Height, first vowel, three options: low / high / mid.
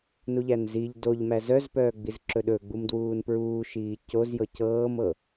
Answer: high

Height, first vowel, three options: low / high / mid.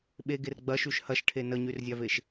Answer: mid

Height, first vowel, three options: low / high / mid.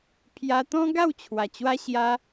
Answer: low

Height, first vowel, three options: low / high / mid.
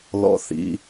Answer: mid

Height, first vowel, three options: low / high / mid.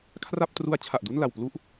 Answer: low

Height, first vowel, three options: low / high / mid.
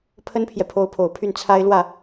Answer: mid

